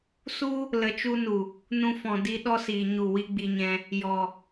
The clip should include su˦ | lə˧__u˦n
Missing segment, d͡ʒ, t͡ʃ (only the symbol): t͡ʃ